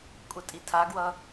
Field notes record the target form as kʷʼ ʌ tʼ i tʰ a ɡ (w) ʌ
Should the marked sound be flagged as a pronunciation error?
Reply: no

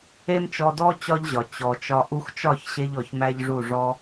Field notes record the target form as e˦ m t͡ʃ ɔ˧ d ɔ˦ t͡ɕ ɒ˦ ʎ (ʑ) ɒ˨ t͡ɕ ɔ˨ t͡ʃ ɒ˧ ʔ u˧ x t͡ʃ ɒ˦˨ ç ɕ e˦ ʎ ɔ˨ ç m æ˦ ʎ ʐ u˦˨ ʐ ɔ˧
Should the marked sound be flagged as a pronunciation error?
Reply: no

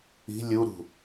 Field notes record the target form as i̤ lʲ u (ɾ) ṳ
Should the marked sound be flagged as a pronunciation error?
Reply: no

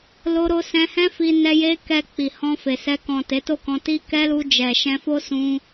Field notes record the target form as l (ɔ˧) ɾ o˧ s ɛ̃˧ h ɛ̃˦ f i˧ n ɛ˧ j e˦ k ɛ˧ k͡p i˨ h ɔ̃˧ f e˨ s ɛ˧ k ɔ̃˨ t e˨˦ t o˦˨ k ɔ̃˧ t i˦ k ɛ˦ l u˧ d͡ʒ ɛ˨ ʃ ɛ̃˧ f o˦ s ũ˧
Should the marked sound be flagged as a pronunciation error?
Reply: yes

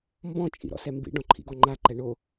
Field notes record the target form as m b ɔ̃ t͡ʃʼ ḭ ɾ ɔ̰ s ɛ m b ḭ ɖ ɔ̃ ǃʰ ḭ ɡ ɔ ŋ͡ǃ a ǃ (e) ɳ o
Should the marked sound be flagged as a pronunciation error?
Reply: yes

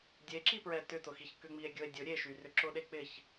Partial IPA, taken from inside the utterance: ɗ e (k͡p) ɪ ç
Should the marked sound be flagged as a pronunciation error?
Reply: no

